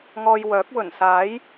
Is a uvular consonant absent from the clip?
yes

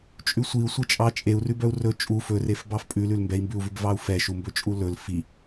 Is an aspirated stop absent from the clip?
yes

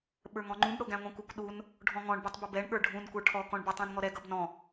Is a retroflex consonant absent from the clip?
no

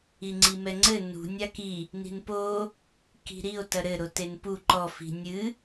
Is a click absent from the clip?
no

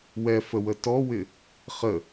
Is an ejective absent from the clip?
yes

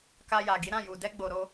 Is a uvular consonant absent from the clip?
yes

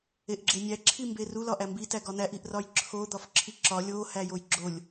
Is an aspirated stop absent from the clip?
no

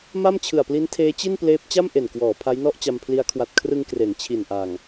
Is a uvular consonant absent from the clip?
yes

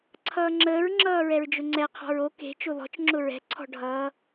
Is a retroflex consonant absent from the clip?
no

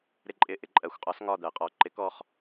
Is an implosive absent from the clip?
yes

